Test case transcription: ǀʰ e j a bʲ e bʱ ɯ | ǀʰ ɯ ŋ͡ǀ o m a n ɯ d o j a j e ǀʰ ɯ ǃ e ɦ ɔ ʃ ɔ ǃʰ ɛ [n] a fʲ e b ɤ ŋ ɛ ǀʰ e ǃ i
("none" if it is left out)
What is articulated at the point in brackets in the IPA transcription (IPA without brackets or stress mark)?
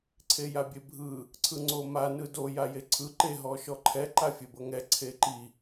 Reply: ǃ